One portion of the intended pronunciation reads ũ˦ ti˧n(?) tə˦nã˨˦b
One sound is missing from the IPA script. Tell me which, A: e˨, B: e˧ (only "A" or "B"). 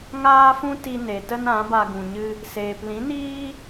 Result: A